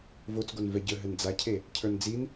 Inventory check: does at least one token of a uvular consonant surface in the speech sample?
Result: no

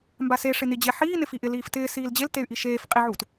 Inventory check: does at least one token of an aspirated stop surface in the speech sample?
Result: no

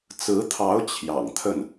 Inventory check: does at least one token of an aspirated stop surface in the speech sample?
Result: yes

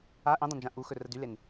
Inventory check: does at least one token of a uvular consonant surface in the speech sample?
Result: no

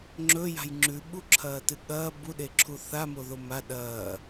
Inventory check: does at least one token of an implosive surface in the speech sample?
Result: yes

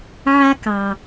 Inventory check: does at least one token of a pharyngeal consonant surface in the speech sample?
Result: yes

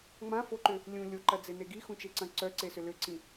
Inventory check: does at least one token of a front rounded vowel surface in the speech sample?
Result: yes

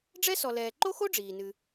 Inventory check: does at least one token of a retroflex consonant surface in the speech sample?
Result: yes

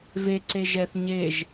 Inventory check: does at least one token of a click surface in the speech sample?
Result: yes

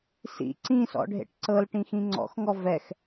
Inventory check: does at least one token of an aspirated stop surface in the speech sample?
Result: no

